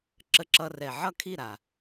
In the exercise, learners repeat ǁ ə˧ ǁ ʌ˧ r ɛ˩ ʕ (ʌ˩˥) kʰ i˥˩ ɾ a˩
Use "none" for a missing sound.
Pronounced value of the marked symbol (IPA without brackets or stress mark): ʌ˥˩